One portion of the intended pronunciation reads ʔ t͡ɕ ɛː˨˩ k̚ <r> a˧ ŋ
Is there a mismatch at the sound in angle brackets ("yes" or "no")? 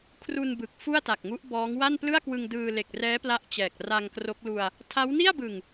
no